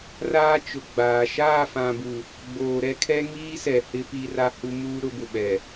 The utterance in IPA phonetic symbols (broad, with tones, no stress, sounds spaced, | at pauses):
r aː˦ t͡ʃ ʊ˨ ɡ͡b aː˨ ʃ aː˦˨ f ã˨ b u˨ | ɡ͡b oː˨ ɾ ɛ˦ kʰ ɛ˦ ŋ iː˦ s ɛ˨ h ɪ˦ p i˦ r a˦ h u˦ m uː˦ ɾ ʊ˨˦ b ʊ˨ ɓ ɛ˨